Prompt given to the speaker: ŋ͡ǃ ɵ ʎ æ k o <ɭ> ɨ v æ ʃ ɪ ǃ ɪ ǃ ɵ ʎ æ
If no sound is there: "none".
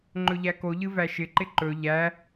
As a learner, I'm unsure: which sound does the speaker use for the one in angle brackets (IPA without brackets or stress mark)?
ʎ